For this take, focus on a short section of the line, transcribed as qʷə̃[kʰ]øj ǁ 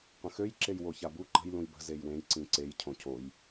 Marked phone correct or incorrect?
incorrect: x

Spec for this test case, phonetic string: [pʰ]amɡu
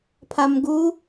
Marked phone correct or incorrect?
correct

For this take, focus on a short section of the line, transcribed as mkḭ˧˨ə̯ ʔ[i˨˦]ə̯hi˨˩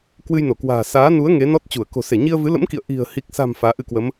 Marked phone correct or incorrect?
incorrect: i̤˨˩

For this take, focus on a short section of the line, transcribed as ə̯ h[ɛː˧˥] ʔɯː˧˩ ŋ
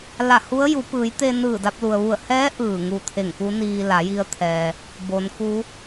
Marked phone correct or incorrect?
correct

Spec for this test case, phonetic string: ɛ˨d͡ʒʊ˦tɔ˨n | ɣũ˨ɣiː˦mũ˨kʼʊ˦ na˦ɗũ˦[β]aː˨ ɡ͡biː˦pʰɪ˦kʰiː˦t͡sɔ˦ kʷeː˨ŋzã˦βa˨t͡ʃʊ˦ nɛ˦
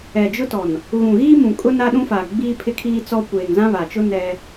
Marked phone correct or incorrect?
incorrect: f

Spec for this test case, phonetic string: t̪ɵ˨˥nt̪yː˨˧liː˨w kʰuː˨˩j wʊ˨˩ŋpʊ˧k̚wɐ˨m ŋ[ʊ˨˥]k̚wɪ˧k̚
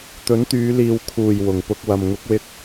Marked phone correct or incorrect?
correct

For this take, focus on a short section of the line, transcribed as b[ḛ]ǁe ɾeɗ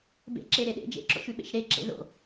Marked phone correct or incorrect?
correct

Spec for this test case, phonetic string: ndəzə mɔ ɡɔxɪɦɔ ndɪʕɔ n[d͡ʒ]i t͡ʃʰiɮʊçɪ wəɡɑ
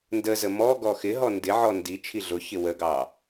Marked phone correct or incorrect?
incorrect: d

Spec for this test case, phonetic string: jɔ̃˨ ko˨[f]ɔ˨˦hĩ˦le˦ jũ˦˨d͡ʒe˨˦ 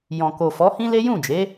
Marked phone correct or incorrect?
correct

